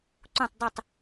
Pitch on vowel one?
falling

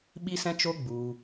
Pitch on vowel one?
high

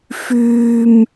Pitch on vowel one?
high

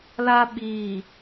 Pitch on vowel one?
high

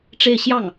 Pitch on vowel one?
falling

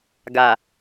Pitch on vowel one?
low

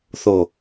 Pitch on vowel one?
low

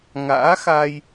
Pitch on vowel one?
rising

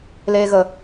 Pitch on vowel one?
high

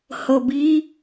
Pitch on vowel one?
low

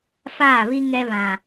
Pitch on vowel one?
falling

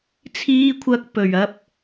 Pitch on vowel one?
high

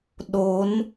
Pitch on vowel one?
rising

